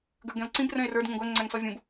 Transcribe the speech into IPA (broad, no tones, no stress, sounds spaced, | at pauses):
ɡ ə˞ ɡ ɛ̃ o̯ ǀ ĩ b r ɛ̃ e̯ r ə˞ d ŋ ũ ɡʷ æ ŋ͡ǀ æ ŋ s ɔ vʲ ũ b